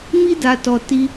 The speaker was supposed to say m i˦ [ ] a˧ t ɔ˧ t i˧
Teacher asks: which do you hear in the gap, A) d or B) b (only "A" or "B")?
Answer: A